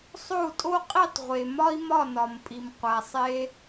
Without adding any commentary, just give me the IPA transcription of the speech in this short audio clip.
sˤ o˥˩ u̯ tʼ o˥ qʼ i˥˩ tˤ ʁʷ e˩ m ɒ˥ i̯ m ɒ˥˩ n ɒ˩ m pʼ i˩ m qʷ æ˩ sˤ e˧

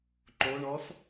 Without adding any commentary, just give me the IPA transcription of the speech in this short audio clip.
ǃ o ɳ ɔ s

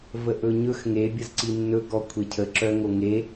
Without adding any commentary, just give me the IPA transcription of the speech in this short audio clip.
v ə ʔ ɵ ɲ ɵ x ŋ e bʲ ə z ǀ i nː ɵ ɡ ɔ kʷʰ e cʰ ə ǁ œ ŋ o ŋ e

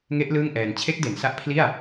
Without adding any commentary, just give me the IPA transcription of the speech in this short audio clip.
ŋ e˦˥ ʔ l ɯː˥˩ ŋ ʔ ɛː˧ n t͡ɕʰ e˦˥ k̚ d e˩˦ n s a˦˥ ʔ pʰ l i˥˩ a̯

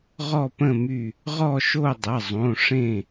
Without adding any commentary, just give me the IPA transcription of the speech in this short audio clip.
ʁ ɔ˦˨ p ə̃˦˨ m y˦˨ | ʁ ɔ˦˨ ʃ o˦˨ dˤ ə˩˧˩ zˤ õ˩˧˩ ʂ ẽ˦˨

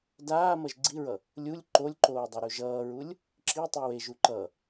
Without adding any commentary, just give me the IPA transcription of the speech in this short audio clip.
d aː m ʌ ʒ ɡ͡ǀ i ɹ ʌ | lʲ u lʲ ǃ o lʲ ǃ oː dˤ ɛ ɾ u ʒ ʌː ɹ u lʲ | ǁ i tˤ i w e ʒ u ǃ ʌ

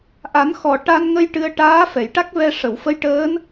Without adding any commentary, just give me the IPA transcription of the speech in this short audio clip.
ʔ a˨˩˦ n x ɔ˨˩ ʈ a˧ n ŋ ə˧ j ʈ ɨ˧ ə̯ ʈ aː˧˥ f ɛ˨˩˨ j ʈ a˦˥ k̚ v ɛ˧ ʂ ə˨˩˨ w f ə˧˥ j ʈ əː˧˥ n

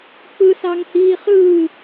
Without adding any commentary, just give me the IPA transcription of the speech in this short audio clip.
k͡p ɯ s ɑ ŋ h iː χ ɯ

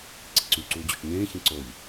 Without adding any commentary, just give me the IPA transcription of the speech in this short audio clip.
ǀ i ǀ y ǀ uː d͡ʑ ø t͡ʃ ɲ ẽː ç ẽ ǀ o ʎ

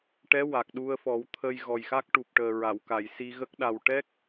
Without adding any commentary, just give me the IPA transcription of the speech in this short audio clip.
ʈ ɛ˧˥ w a˨˩ k̚ ɗ u˧ ə̯ f ɔ˨˩˦ w t̪ʰ əː˧ j ɣ ɔ˨˩ j x a˦˥ k̚ ʈ u˨˩ p̚ ʈ əː˨˩ ɹ a˨˩˨ w k a˨˩˨ j s i˧ ɣ ə˦˥ k̚ ɗ a˨˩ w ʈ ɛ˦˥ k̚

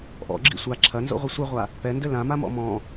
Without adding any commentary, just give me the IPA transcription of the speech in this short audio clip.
ʔ ɔ̰ ɡ͡ǁ ḭ sʷ a ǁʰ ɐ n z o̰ ʁʷ ɘ sʷ ɛ ʁʷ a | p ɛ n d ɘ l ã m a m ɔ̰ m ɔ̃

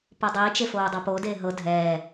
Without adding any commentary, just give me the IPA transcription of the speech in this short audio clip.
p o dˤ i t͡ʃ e f oː dˤ ɤ p o d eː ɦ ɤ dʱ ɛː

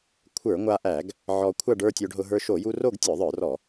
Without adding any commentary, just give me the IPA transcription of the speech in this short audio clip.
kʷʰ ə˞˧˩˧ ŋʷ a˧ ʔ æ˧˩˧ ɡ | ʕ ɔ˧ kʷʰ a˥˧ ɖ ə˞˥˧ tʲ o˧ ɖ ɦ ʊ˧ ɦ ə˞˧ ʃ o˧˩˧ j u˧ r o˥˧ ɡ tʲ ə˞˧˩˧ ðˤ ə˞˧˩˧ r ɔ˧˩˧

